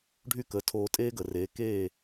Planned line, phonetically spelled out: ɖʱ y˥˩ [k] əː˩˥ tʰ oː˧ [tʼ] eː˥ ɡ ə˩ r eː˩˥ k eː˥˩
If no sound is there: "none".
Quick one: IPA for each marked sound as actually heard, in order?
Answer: k, tʼ

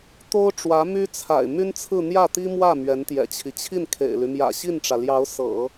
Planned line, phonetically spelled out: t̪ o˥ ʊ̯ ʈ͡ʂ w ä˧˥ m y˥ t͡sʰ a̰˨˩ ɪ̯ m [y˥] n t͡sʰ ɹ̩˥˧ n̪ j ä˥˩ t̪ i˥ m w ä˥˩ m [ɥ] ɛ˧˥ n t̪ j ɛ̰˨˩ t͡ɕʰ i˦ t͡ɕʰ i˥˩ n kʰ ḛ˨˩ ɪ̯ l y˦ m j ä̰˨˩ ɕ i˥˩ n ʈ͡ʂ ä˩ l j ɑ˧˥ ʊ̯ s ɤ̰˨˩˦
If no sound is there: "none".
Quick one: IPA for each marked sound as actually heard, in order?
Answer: y˥, ɥ

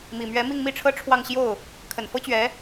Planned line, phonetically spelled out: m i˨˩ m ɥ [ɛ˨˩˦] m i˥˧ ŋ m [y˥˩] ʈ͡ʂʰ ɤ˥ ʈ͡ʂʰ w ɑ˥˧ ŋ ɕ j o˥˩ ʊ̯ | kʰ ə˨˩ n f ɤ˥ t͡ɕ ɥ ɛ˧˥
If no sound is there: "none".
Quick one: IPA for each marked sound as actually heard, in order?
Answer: ɛ˧˥, i˥˩

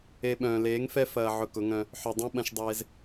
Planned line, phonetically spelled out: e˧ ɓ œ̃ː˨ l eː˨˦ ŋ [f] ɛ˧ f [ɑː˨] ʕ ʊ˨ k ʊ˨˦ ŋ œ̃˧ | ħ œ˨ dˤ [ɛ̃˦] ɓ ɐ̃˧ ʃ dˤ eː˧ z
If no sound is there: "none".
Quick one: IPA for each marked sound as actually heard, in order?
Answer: f, ɐː˨, ɛ̃˦

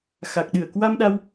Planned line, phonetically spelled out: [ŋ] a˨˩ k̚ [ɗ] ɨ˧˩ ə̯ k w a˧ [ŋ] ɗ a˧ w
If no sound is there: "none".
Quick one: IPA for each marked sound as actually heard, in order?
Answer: x, ɗ, m

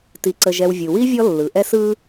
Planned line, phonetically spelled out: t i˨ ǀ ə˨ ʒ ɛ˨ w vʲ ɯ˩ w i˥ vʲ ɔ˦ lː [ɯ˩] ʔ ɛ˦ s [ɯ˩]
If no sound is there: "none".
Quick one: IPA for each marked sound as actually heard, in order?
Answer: ɯ˩, ɯ˦

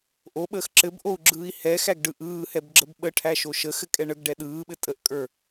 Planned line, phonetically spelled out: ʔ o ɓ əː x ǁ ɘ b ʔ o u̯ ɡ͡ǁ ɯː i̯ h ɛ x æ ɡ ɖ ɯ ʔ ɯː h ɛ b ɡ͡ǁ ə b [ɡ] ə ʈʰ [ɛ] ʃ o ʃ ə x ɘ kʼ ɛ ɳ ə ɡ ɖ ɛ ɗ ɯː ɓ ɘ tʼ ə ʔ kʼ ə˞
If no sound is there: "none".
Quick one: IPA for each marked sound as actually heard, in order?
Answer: ɓ, æ

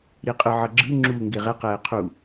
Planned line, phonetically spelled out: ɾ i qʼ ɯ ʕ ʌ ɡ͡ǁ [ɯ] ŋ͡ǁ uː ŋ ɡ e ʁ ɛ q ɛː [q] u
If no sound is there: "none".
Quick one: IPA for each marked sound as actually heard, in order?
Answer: ɯ, qʰ

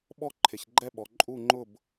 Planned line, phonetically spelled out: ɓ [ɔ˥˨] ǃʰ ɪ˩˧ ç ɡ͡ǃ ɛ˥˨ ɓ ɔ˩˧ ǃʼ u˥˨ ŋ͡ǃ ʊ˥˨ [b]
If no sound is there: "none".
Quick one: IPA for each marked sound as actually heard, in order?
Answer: ɔ˥˨, b

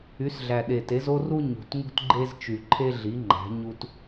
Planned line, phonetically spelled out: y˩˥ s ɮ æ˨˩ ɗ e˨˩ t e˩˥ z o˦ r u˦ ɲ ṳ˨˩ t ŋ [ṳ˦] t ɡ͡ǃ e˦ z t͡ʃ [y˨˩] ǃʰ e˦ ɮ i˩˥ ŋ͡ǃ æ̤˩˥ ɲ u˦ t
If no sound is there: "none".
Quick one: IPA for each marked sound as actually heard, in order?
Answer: ṳ˦, y˨˩

